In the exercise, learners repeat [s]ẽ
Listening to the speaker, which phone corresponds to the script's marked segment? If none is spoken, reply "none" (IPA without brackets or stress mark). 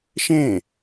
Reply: ʃ